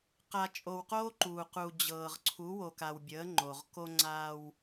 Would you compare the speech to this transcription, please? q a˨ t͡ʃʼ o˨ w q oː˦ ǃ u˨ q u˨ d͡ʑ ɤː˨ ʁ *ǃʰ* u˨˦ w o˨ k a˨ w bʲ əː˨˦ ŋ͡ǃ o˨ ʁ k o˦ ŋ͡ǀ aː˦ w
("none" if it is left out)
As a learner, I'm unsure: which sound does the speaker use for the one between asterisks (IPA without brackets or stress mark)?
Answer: ǀʰ